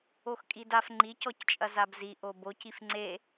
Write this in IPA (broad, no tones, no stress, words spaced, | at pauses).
oxkʼidaf ŋ͡ǃicɔct͡ʃʼɐ zabziʔo boc ifŋ͡ǀe